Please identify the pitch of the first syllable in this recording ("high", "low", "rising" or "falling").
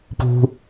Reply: high